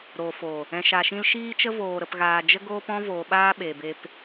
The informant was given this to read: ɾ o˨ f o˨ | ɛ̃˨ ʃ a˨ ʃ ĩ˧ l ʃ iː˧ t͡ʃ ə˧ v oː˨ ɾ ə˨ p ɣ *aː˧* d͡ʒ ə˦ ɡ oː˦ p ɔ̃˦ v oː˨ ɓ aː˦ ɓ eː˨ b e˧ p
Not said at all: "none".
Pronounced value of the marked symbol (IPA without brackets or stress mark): aː˨